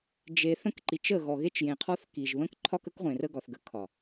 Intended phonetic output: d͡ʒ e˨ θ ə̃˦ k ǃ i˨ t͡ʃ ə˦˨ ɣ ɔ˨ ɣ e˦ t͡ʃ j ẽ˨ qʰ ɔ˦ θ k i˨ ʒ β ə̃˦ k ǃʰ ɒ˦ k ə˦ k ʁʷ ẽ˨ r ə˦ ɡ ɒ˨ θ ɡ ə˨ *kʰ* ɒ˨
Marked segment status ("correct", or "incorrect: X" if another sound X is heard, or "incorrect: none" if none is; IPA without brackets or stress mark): correct